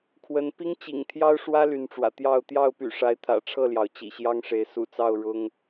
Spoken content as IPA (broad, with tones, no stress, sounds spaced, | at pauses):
kʰ w ə˨˦ n p i˦ ŋ t͡ɕ ḭ˨˩ ŋ t̪ʰ j ɑ˦ ʊ̯ ʂ w ä˦ l y˨˦ n ʈ͡ʂ w ä̰˨˩ t̪ j ɑ˥˨ ʊ̯ t̪ j ɑ˥˨ ʊ̯ p y̰˨˩ ʂ a˨˦ ɪ̯ t̪ʰ ä̰˨˩ ʈ͡ʂʰ ɤ˥˨ l j ɑ˩ ʊ̯ t͡ɕ ḭ˨˩ ɕ j ɑ˦ ŋ ʂ e˨˦ ɪ̯ s ṵ˨˩ t͡s ɑ˥˨ ʊ̯ ɻ ʊ˦ ŋ